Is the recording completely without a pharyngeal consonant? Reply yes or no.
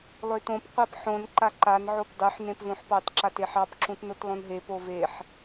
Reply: no